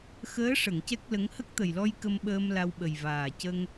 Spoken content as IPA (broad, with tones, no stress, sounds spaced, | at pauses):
x əː˧˥ ʂ ə˨˩˨ ŋ c ɛ˦˥ k̚ l ə˧˥ ŋ h ə˦˥ k̚ t̪ ə˨˩ j l ɔ˧ j k ə˧ m ɓ əː˧ m l a˧ w ɓ ə˨˩ j v aː˨˩ c ə˧ ŋ